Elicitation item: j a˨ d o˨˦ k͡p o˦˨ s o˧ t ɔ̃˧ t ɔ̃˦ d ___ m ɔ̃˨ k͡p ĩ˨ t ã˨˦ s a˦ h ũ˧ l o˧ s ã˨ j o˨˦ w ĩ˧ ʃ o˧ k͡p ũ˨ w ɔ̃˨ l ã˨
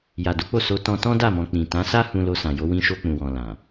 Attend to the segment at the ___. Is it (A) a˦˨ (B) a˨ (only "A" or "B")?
A